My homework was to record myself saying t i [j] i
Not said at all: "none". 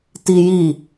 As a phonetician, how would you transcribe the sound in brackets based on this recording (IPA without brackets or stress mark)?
j